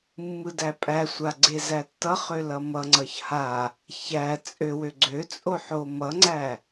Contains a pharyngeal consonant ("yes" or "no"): yes